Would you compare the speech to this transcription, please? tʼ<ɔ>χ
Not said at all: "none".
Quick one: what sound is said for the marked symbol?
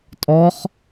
ɔ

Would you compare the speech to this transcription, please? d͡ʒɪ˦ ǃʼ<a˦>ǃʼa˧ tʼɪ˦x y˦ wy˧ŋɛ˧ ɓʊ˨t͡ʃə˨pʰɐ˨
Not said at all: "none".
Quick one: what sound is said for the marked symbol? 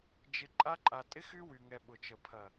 a˦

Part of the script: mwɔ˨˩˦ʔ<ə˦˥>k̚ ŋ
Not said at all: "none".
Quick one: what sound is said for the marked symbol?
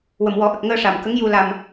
ə˨˩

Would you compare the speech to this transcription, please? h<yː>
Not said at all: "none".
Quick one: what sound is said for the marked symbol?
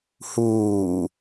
uː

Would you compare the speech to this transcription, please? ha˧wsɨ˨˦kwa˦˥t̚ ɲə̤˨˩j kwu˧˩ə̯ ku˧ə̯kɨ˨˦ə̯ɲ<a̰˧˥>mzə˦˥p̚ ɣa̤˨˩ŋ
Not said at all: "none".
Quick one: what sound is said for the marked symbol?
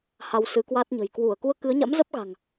a̰˧˥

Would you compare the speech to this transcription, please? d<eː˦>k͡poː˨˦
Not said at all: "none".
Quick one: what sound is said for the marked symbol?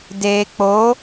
eː˨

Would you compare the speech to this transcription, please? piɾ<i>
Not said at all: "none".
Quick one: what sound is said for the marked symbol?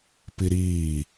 iː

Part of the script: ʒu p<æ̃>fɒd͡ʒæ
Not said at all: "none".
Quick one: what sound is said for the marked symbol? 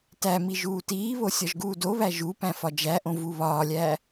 æ̃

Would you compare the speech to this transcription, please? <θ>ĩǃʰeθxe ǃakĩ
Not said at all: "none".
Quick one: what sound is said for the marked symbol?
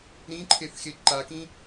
ɾ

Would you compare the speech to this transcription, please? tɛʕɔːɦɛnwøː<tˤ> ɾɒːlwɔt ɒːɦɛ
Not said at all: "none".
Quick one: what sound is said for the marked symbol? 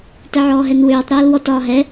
tˤ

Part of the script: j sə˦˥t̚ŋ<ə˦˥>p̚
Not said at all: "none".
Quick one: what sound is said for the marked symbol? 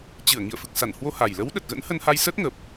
ə˨˩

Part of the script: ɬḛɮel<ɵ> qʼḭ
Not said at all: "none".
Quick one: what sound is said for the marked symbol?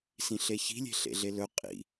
ɵ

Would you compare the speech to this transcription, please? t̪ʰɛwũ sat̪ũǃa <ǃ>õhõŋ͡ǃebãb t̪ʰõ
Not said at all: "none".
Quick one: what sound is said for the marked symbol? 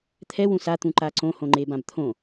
ǀ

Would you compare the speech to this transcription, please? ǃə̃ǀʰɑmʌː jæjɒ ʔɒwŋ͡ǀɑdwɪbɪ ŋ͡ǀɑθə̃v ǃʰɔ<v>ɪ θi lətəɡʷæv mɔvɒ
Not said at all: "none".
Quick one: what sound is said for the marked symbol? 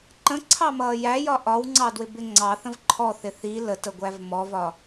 θ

